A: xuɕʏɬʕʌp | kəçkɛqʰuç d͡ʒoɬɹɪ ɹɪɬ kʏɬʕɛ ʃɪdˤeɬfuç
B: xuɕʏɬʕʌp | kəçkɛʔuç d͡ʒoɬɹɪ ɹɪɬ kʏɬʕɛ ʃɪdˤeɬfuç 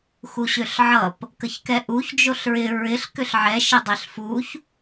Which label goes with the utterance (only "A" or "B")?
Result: B